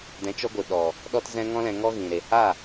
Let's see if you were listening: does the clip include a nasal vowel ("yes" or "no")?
yes